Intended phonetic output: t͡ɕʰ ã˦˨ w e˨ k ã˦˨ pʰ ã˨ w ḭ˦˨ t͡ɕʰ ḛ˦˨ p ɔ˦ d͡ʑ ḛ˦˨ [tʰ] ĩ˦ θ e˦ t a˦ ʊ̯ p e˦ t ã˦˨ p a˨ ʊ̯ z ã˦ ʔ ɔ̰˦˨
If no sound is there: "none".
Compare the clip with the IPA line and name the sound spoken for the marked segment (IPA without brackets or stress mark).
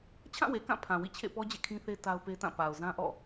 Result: kʰ